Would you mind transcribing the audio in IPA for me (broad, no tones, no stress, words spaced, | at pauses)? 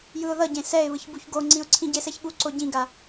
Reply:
jɯʊ̯ðʌɟẽ sɛɪ̯βɯçbuç ɡoŋ͡ǀĩʊ̯ ǀʰĩɟesɛçɠu ǀoɟĩɡa